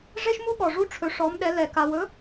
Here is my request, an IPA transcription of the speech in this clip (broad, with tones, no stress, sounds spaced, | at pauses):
ʐ e˥ ʃ m u˥ ɠ ɔ˧ ʐ u˥ ʈ͡ʂʰ ɵ˧˥ ʂ ɔ˧˥ m ɗ ɛ˧˥ l ɛ˧ k a˧ w ɵ˧˥